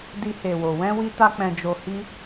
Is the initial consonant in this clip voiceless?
no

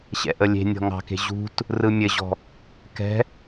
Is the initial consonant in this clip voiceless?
yes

